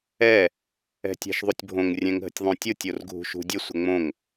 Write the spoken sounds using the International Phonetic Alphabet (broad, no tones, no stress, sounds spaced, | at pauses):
ɛ | ɛ̤ tʲ a̤ ʃ ðˤ u tʲ bʱ õ ŋ rʲ ɛ̃ ŋ ɦ ə̤ tʲ ðˤ õ tʲ o tʲ o r ɡʱ ṳ ʃ ṳ dʲ ə sʷ ə ŋ͡m õ ŋ